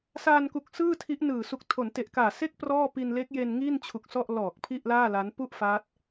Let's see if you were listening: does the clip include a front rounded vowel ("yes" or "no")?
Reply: no